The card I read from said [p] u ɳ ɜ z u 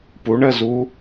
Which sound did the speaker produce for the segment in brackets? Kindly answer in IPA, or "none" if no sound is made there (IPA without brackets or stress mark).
p